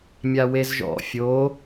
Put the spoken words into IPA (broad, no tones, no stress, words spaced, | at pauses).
mʲawezʒɔ̰ fʲo